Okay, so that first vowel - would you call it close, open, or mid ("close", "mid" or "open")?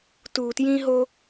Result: close